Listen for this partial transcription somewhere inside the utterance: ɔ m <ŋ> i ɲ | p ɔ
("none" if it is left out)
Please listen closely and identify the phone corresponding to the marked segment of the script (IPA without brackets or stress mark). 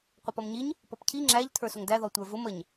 ɲ